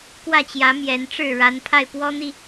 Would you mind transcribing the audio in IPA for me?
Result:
k w ä˥˨ t͡ɕ j ä˨˦ m j ɛ˨˦ n ʈ͡ʂ ɻ̩˥˨ ɻ a˨˦ n pʰ a˥˨ ɪ̯ p w ɔ˦ n̪ i˥˨

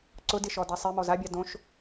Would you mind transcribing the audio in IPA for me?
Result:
ǀ ʊ d ɪ ʃ ɔ d a sˤ e m ɔ z a bʲ a d õ ʃ

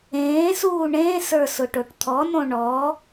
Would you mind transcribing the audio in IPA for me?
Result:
ẽː s uː ɳ ẽː s ə˞ s ʊ ʈ o ʈ t̪ʰ ɔ n õ ɳ ɔ

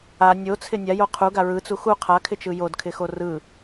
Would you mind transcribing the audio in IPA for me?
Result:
a nʲ o t͡sʰ ɪ nʲ a j o qʰ u ɡ a ɹ ɯ t͡s u x u qʰ a kʰ ɪ t͡ʃ ɯ j o d kʰ ɪ x o r ɯ

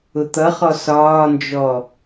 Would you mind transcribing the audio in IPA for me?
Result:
ʊ t̪ ʌ χ ɔ s ɒː n d͡ʒ ɔ

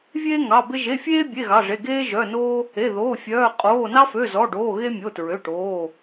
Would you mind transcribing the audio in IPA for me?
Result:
vʲ eː˦ ŋ ɑ˩˧˩ b e˦ ʒ e˩˧˩ fʲ eː˦ bʲ e˩˧˩ ɣ ɑ˩˧˩ ʐ e˩˧˩ ɡ eː˦ ʒ œ˩˧˩ n oː˦ | e˩˧˩ ð oː˩˧˩ fʲ œː˩˧˩ qʼ oː˩˧˩ n ɑ˦ f ø˩˧˩ z ɔ˩˧˩ ɖ oː˩˧˩ ɣ e˦ mʲ o˩˧˩ t ɹ ø˩˧˩ ʈ oː˩˧˩

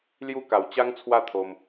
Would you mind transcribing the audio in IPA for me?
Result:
l j u˥˧ k a˧ w t͡ɕ a˦ ŋ t͡sʰ w a˥˧ t̪ʰ o˧ m

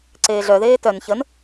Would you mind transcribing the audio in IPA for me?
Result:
ǀ eː ɮ œ ð eː t œ n ç ə n

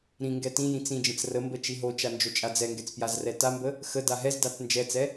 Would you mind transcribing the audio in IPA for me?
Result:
ɾ ĩ ŋ ɡ ɛ t ĩ j ĩ t͡s ĩ d͡ʒ ə̃ t͡s r ə m b ə t͡ʃ i ɦ o t͡ʃ a n d͡ʒ o t͡ʃʼ a d͡z ɛ ŋ ɡ ɛ t͡s p j a z r ɛ t a m b ə | x ə d a ɦ ɛ z d a t͡s n d͡ʒ ɛ t͡s ɛ

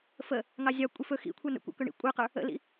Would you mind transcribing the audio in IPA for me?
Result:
f ə | ŋ ɑ zʲ ɑ kʷʼ i f ɵ x ḭ kʷʰ ɜ n ə̰ kʷ ɑ̰ k ɵ ɳ ḭ kʷʼ ə˞ q ə˞ | ə̰ l ḭ

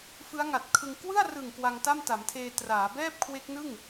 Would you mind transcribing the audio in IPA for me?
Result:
f ɯ˦˥ a̯ ŋ a˨˩ t̚ kʰ ɯ˧ ŋ k w ɯ˥˩ a̯ r ɯ˨˩ ŋ k w a˧ ŋ t a˥˩ m t a˩˦ m tʰ eː˧ t r aː˩˦ b ɛː˥˩ p̚ kʰ w e˦˥ k̚ n ɯ˥˩ ŋ

